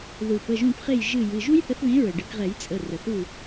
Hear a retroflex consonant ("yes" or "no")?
yes